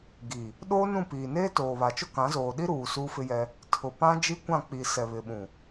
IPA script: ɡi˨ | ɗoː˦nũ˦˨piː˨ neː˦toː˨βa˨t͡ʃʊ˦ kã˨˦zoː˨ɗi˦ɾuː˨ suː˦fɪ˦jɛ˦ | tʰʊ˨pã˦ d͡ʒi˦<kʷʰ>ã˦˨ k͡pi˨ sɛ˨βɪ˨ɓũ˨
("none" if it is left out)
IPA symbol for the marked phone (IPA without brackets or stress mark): kʷ